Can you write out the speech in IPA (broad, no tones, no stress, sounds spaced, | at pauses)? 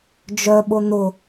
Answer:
d͡ʒ œ ɓ ʊ n̪ ʊ